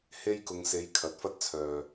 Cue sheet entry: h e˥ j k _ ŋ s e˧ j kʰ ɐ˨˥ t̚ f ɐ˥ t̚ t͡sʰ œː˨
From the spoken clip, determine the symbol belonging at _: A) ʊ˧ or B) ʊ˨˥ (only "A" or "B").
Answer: A